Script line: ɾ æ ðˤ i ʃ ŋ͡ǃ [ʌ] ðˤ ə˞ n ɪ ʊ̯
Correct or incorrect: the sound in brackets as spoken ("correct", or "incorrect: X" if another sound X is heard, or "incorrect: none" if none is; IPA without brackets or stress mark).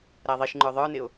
incorrect: ə˞